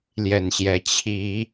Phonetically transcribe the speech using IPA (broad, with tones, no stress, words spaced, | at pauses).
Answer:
ljɛ˨˩nɕjɛ˨˦ t͡ɕʰi˨˦